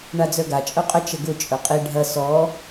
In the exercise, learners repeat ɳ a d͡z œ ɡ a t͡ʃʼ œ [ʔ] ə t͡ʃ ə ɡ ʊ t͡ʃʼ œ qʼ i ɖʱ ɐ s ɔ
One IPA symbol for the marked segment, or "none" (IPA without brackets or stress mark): qʼ